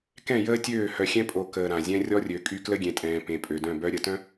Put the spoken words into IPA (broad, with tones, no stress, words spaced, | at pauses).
kɛ̃˦˨jəː˦tʲøː˦˨ hœ˨xʲɛ̃˦pʼo˨ kəː˨ ɾã˨ zʲɛ̃˦rʲɔ˦rʲø˨˦kʼy˦ klə˦ɡʲẽ˨tʼɛ̃ː˨ pẽ˨pʼø˨dœ̃˦˨bœ˦ ɾʲə˨tœ̃˦